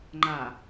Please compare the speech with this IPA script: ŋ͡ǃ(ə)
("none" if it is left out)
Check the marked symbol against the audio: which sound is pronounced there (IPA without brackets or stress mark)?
a